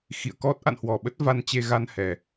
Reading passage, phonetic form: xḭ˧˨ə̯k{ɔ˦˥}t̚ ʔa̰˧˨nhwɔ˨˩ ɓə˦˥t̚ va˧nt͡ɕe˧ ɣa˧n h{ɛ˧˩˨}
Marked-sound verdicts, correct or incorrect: correct, incorrect

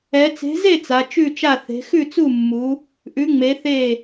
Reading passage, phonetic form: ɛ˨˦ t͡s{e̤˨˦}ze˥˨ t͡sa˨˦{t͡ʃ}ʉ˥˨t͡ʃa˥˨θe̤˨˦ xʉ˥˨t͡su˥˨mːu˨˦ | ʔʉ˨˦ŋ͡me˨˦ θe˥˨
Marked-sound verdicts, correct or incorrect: correct, correct

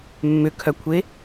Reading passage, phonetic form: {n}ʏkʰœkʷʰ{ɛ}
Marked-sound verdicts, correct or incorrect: incorrect, incorrect

